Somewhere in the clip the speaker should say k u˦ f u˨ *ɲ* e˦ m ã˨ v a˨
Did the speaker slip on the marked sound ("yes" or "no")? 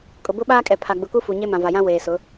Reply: no